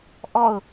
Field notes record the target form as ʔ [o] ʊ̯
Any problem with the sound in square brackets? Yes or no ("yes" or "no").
yes